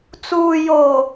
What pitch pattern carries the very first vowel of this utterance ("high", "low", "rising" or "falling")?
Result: low